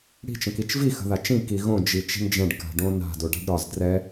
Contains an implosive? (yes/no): no